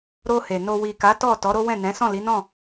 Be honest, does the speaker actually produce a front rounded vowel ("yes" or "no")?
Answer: no